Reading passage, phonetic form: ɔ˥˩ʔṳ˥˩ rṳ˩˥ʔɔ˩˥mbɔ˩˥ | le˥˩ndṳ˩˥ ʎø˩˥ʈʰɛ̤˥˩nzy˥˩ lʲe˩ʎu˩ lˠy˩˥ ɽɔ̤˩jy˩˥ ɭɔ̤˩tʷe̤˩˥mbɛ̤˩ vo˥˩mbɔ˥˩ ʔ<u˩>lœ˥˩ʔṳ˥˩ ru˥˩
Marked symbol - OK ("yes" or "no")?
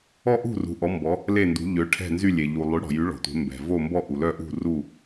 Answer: yes